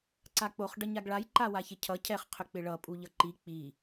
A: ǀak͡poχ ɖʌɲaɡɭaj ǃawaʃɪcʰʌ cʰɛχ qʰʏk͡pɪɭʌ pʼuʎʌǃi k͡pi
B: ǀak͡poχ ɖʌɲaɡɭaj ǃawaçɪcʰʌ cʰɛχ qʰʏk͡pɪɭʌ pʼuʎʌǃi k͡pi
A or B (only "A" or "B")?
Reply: B